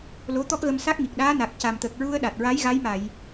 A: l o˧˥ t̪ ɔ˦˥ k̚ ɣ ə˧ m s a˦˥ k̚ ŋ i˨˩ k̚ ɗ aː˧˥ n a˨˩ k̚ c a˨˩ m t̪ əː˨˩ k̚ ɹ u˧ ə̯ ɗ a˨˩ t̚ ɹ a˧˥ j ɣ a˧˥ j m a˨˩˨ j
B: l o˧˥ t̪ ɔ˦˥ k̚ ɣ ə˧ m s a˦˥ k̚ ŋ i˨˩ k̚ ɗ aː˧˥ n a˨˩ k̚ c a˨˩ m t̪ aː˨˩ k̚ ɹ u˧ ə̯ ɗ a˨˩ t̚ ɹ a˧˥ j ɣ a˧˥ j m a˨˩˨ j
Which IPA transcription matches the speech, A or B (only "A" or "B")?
A